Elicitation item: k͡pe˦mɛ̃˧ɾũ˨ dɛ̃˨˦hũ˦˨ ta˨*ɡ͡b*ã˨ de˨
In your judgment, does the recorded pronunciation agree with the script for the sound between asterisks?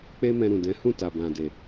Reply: no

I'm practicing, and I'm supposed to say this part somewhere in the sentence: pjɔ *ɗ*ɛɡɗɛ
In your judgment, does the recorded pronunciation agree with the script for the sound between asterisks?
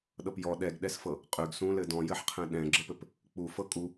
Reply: yes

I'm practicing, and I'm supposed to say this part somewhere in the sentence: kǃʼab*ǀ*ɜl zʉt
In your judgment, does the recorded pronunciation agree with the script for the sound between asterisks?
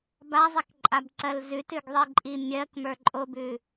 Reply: yes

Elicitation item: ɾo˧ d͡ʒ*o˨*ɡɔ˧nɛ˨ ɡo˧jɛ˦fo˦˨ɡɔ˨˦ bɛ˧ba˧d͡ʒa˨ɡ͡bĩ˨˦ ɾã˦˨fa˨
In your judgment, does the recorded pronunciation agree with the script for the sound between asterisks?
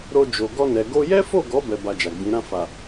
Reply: yes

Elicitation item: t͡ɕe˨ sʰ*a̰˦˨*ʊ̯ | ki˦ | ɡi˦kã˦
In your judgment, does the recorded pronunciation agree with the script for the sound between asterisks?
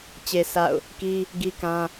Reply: yes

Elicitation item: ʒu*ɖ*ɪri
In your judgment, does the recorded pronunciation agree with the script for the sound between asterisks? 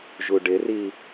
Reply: yes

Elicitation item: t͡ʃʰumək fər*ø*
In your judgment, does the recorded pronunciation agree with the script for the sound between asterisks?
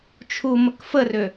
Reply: yes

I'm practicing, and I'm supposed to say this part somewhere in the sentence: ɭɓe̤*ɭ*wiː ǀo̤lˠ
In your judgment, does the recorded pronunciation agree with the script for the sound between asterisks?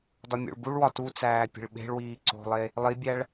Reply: yes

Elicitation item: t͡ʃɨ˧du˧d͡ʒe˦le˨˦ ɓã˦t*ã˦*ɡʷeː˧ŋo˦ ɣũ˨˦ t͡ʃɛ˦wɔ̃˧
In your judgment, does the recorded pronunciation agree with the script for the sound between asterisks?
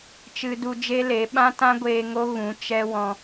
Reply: yes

